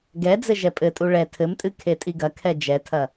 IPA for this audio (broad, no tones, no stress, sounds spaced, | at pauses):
ɡ ɛ d͡z ɘ ʒ ɛ pʼ ɘ tʼ u ɭ ɛ tʰ ɘ m tʼ ɨ kʰ e tʼ i ɡ ɐ kʰ ɛ d͡ʒ ɛ tʰ ɐ